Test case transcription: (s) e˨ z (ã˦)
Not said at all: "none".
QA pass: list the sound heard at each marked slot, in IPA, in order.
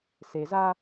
s, a˦

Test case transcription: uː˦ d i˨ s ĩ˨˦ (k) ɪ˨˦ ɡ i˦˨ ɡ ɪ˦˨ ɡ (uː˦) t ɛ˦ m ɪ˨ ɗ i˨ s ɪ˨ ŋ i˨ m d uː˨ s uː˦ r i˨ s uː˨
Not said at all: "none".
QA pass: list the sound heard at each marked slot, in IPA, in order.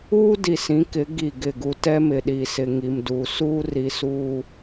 k, u˦

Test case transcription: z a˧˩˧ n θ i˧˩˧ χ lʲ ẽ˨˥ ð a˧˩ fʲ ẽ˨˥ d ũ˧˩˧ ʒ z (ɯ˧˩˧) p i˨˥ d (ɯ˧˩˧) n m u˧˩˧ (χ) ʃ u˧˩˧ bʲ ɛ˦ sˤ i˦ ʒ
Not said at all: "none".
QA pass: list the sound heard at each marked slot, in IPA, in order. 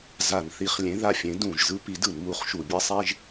ɯ˦, ɯ˧˩˧, χ

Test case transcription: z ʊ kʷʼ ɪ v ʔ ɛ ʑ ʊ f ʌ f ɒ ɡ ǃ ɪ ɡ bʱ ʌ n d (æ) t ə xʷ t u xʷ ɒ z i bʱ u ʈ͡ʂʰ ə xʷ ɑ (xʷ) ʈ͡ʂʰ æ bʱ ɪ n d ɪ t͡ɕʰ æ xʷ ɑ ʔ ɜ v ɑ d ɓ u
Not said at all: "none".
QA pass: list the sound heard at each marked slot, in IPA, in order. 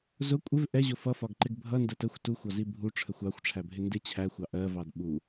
ɜ, xʷ

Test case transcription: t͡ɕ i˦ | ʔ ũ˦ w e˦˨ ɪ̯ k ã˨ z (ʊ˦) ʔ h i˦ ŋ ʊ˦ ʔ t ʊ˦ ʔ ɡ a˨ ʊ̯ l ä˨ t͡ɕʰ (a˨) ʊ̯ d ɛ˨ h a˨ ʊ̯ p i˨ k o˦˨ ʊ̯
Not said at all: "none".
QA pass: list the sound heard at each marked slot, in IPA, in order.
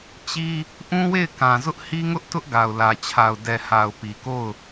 ʊ˦, a˨

